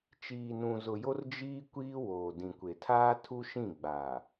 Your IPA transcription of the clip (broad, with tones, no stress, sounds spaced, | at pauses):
t͡ʃ iː˨ n ũ˨ z ʊ˨ j o˦ r d͡ʒ iː˦ kʷ iː˦ w oː˨ d ĩ˨ kʷ e˨ tʰ aː˦ tʰ u˦ ʃ ĩ˦˨ ɡ͡b aː˨